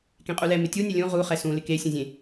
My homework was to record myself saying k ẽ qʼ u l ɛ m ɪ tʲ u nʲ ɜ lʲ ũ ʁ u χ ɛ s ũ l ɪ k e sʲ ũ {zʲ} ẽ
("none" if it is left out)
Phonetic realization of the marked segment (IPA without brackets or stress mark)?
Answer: zʲ